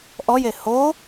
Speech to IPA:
ʔ ɔ j e h o

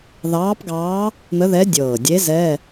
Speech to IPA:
ð ɑː˧˥ p ɡ ɑː˧˥ | n̪ ə˧˥ ð ɛ˧˥ dʲ ɤː˨˩ dʲ e˧˥ z ɛː˧˥˧

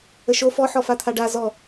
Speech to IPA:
ə ʃ o f ɔ ħ ɔ f a t̪ʰ a ɖ a z ɔ

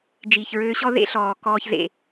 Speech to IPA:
d͡ʒ iː˨ ç ɹ øː˧ ɕ ɔ˦ ð ḛ˦ ɬ ɔː˨ k ɔː˦ ç z ḛ˧

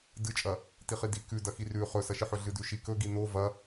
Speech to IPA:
d ɨ t͡ʃʼ ɐ | t i χ i d i k ʉ d ɐ x i r ʉ χ ɵ s ɐ ʃ ɨ ħ ɵ ɮ ɨ d ʉ ʃ i k ɵ ɡ i n o v ɐ

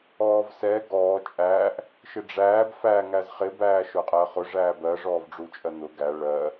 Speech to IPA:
ɔː v s ɛ ɡ ɔː t͡ʃʼ æː ʔ | ʃ ɪ ɖ͡ʐ æː b f æ ŋ æ z χ ɪ b æː ʃ ʊ qʼ ɜ χ ʊ ʐ æː b ɜ ʐ ɔː v ɖ͡ʐ u t͡ʃʼ ɜ n ʊ ɡ æ ɭ ɜ

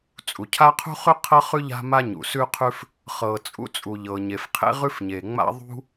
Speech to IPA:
t͡sʼ u˩ cʰ a˥ qʰ ṳ˥ χ ʉ˥ qʰ ɤ˥ χ ʉ˥ ʎ a̤˥ m a˥ ɲ ṵ˩ s ʉ˥ qʰ ʉ˥ f | χ ɤ˩ t͡sʼ ṵ˥ t͡sʼ u˩ ʎ ɤ˩ ɲ e˩ f qʰ ḛ˥ ʁ ʉ˥ f ɲ e˩ ŋ͡m a̰˥ ðˤ ṳ˥

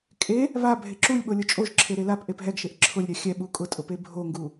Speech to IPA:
kʼ e | β a bʱ e ǁ u lʲ ɓ o lʲ ʊ t͡ʃʼ o ʒ ǁʰ e ɾ e l a p ʔ e p ɦ ɛ ɡ ʃ e ʔ ǁʰ ʊ lʲ ɾʲ a xʲ ɛ ɓ u kʼ ʊ tʼ ʊ p e bʱ o ŋ ɡ u

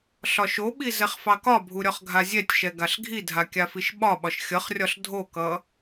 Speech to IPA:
ɬ ɒ ʃ o ɓ i z ɛ χ f ɑ k ɒ bʱ u ɾʲ ɒ χ ɡʱ a zʲ ɛ tʲ ʃ ɛ ɡ a ɬ ɡʱ i dʱ a kʲ a f i ʃ ɓ ɒ ɓ ɒ ʃ xʲ ʌ χ rʲ ɒ ɬ dʱ o k ʌ

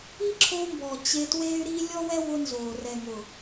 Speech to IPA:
i˦ ǁʰ o˧ m b ɔ˨ t͡ɕ e˧ t w e˦ y̯ ɾ i˦ lʲ ɔ˦ w ɛ˦ w ʊ˧ n z o˨ r ɛ˨ ŋ ʊ˨

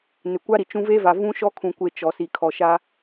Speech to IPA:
n ɪ˨ kʷ a˦ ɾ i˨ t͡ʃ ũ˦ v e˦ v a˨ v ũ˦ ʃ ɔ˦ kʰ ũ˨ kʷ e˨ t͡ʃ ɔ˨ s i˨ kʰ ɔ˨ ʃ a˦

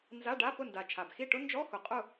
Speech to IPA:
n z a˧˥˧ ɖ a˧˥˧ p ʊ˥˨ n d a˨˩ t͡ʃʰ a˨˩ b x i˥˨ ʈ ʊ˥ n d͡ʒ ɔ˧˥˧ x ʊ˨˩ qʼ ʊ˥˨

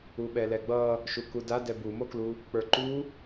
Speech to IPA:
u ɓ ɛ l ɛ ɡ͡b ʌ | ʃ u k u d a d ɛ b u m o k l u | k͡p ə˞ ǃ u

